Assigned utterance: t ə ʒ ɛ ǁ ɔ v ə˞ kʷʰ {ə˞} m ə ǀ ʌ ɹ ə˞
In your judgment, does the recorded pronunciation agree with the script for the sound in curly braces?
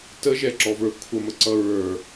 no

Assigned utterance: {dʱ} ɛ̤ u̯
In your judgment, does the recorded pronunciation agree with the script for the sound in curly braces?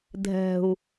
yes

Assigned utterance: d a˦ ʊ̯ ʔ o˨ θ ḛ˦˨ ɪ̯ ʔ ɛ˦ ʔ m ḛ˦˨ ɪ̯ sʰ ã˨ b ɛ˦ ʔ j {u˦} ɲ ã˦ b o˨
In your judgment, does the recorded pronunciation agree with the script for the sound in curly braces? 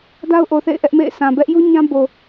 yes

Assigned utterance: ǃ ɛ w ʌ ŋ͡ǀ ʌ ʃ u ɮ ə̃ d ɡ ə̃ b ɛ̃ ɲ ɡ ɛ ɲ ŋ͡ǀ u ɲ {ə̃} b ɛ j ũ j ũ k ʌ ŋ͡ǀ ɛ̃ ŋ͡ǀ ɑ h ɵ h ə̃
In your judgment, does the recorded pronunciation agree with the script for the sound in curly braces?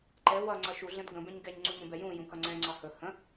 yes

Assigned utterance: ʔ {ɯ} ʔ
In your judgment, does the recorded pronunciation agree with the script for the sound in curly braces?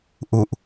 no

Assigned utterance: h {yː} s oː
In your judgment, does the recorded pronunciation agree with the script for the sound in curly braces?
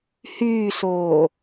yes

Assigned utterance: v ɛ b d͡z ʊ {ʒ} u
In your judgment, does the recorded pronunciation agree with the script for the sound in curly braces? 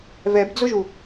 yes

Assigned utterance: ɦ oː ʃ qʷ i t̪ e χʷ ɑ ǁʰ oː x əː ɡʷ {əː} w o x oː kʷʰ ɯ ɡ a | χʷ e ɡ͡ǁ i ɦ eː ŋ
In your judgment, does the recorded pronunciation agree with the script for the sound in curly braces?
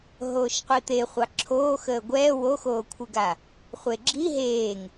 no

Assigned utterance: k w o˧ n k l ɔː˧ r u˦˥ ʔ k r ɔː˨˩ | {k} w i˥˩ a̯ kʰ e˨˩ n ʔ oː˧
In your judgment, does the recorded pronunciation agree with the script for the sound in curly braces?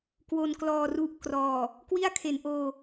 yes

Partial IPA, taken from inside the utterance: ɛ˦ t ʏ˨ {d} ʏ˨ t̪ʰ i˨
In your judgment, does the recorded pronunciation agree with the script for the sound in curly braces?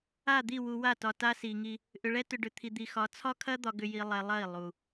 no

